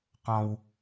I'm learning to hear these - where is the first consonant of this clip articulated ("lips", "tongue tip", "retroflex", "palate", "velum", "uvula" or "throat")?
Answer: uvula